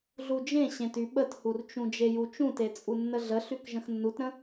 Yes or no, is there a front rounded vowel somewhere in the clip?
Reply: yes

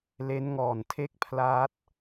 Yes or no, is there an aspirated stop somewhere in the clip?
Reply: yes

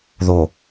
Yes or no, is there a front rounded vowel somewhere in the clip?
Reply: no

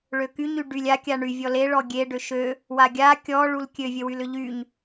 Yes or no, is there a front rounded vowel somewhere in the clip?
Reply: yes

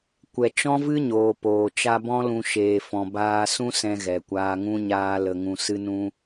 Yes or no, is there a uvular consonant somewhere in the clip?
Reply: no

